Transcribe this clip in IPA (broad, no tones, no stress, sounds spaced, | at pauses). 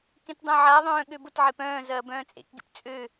k ẽ t dˤ œ̃ ʕ a ðˤ œ̃ː ɠ ø b ʊ t ʕ e p œ̃ː z ɐː b œ̃ː t͡sʼ ḛ k ɡ ḛ p t͡sʼ ø